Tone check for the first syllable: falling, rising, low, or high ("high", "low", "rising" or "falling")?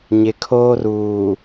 low